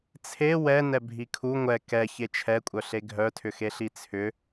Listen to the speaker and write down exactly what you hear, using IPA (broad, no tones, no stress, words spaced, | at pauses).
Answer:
t͡sʰe wɛ nɛbʱikʰu ŋʷɛ kɛ çet͡ʃʰɛkʷʼœɬe ɡʱœtʰʏxeɬi t͡sʰʏ